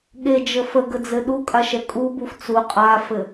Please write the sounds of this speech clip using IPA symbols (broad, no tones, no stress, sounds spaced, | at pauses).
ɠ e d͡ʒ ə f ə ɡ ə d͡z ɘ ɗ u kʼ a ʃ ɛ kʼ u b u f t͡s u qʼ a f ɘ